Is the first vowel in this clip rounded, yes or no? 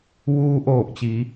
yes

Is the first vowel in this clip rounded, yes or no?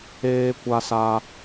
no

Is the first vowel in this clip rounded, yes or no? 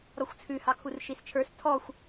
yes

